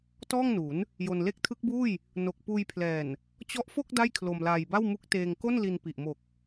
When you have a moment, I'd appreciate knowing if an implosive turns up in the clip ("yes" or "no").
no